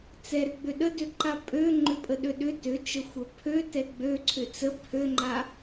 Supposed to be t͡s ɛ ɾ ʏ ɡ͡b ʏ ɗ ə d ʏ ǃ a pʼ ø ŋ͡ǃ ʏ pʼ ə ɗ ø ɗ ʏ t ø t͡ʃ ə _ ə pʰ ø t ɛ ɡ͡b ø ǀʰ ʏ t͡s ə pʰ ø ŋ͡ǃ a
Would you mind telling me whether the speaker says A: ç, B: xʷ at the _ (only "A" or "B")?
B